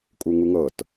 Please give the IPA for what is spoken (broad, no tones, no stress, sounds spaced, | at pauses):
kʼ u ŋ u ŋ ɤ t